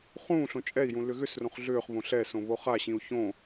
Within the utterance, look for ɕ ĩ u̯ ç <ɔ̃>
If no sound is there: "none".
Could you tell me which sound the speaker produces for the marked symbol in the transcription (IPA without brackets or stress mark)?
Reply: õ